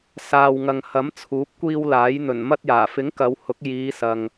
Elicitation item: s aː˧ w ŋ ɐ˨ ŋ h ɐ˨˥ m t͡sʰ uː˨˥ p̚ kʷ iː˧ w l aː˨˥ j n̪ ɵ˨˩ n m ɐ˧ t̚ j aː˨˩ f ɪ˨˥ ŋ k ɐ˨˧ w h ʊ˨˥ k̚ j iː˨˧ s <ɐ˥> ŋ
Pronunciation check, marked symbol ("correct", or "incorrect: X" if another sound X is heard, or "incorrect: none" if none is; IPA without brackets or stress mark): incorrect: ɐ˨